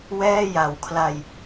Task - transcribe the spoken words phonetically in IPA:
wɛː˥˩ja˨˩wkʰla˧j

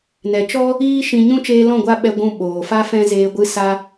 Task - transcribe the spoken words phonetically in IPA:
nɛ˨t͡ʃɔ˦ | iː˦ʃĩ˧ ɲũ˦ t͡ʃeː˧lɔ̃˦˨ ɡʷa˦ɓɛ˧ ɡʷũ˧ɓoː˨fa˦ fɛ̃˦zeː˧ ɡʷɨ˧ sa˧

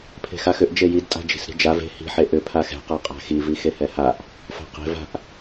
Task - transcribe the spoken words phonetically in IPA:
pʰe̤xaxʏʔ d͡ʒejid tʼa̤d͡ʒi̤sɾi̤d͡ʒav e̤ hi̤ħe ʔʏ pʰaxɛ̤qa qʼa̤xivi xehɛhaʔ | fa̤qe̤ va̤ʔ

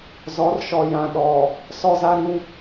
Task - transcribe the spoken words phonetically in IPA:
zɔ˨˦rʃɔ˨ jã˨ɗɔ˨ | sɔ˦za˦ ɾĩ˦

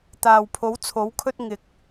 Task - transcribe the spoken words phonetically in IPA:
t̪aː˨wpʰo˨˥wt͡sʰo˨˥wkʰɵ˥t̚ ŋɪ˨˥k̚

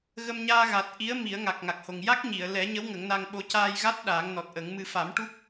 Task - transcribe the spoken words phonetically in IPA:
ɣə˧mɲaː˧ɣa˨˩t̚ ʔi˧˥ə̯ mi˨˩˦ə̯ŋa˨˩k̚ŋa˨˩k̚ho˨˩ŋ ja˦˥k̚ɲi˨˩˨ə̯ lɛ˨˩˦ɲə˧˥w ŋə˨˩˦ŋna˧ŋɓo˧˥ caː˧jɣa˦˥t̚ ɗaː˨˩˦ŋnɔ˨˩t̚ʔə˨˩˦ŋmɨ˧ fa˨˩˦mʈu˦˥k̚

